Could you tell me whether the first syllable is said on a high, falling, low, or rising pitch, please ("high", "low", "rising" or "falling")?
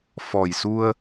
low